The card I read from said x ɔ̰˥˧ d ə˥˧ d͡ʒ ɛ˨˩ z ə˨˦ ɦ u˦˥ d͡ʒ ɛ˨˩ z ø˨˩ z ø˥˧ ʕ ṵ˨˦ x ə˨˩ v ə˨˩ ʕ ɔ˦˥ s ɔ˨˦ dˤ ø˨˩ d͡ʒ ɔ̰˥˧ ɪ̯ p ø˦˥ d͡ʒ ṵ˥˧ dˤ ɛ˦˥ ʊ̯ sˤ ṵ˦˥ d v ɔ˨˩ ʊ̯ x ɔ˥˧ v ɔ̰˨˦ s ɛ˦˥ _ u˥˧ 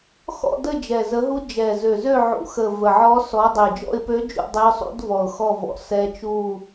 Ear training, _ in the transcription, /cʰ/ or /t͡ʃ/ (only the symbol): t͡ʃ